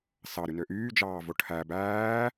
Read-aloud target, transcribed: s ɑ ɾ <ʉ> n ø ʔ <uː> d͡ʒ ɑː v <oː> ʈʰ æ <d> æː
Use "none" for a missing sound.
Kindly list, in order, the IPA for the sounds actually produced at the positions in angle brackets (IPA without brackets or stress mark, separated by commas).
ʉ, yː, o, b